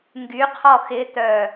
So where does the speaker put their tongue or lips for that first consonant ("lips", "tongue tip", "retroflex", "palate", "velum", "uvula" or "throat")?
velum